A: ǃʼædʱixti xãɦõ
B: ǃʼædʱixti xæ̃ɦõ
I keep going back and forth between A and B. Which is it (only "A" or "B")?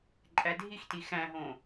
B